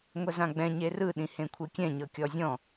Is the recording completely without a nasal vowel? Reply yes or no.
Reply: no